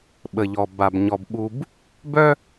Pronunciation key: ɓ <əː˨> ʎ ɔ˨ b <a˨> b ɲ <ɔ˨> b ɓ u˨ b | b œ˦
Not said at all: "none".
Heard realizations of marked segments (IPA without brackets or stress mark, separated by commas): ə˨, a˨, ɔ˨